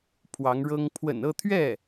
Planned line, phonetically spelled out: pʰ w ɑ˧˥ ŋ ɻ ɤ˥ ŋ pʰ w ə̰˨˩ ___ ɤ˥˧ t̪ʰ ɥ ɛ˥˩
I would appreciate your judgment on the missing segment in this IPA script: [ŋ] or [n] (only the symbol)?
n